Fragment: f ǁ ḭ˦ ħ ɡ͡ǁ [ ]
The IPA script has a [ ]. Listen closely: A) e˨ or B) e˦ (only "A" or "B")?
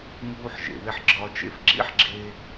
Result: B